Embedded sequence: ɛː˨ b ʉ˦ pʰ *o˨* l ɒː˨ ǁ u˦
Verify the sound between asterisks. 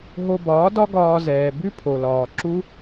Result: correct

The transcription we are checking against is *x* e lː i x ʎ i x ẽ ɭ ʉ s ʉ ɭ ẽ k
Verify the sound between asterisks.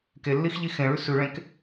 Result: incorrect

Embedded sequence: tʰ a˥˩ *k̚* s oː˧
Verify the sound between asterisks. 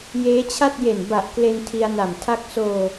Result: correct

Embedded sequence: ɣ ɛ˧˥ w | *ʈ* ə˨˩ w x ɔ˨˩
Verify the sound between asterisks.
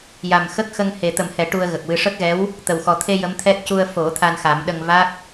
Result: incorrect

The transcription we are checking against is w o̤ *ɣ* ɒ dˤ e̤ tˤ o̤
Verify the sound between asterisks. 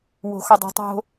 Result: incorrect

